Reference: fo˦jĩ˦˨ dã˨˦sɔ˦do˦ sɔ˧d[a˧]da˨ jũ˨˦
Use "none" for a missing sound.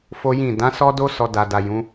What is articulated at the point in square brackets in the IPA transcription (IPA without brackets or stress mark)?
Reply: a˨